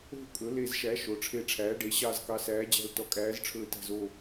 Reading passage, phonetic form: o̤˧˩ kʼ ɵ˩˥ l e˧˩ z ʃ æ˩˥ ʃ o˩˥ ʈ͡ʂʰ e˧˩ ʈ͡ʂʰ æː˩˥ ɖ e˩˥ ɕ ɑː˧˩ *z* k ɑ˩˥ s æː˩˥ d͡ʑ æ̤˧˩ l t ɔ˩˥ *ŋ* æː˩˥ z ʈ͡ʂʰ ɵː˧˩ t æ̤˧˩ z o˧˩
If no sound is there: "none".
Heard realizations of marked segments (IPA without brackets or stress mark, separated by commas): z, kʼ